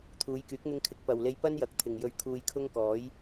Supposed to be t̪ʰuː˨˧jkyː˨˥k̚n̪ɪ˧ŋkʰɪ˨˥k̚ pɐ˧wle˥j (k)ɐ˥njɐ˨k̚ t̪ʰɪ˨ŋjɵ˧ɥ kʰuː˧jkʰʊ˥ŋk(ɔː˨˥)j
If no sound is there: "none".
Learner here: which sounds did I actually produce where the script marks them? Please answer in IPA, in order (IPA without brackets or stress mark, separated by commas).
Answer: p, ɔː˨˥